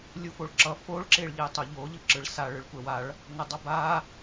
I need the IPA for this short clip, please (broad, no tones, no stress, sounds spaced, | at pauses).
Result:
lʲ u f o ɭ ǁ ʌ f o ɭ ǁ e ɭ ʎ e tˤ o ʎ o ʎ ɯ ǁ ɯ ɭ s a ɭ ɯ ɭ kʷ ɛ w a ɭ | n ʌ dˤ ʌ b a